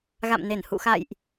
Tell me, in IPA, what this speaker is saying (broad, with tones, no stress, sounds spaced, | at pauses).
ɣ a̰˧˨ m n e˧˩ n h ṵ˧˨ x a̰˧˨ j ʔ